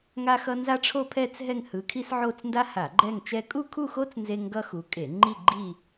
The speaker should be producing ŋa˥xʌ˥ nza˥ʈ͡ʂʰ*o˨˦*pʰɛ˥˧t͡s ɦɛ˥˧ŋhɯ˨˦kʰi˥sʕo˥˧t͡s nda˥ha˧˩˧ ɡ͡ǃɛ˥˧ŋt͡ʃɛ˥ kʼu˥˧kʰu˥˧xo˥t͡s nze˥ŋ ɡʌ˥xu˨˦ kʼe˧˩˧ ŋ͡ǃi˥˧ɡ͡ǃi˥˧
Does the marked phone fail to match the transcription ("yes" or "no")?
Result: yes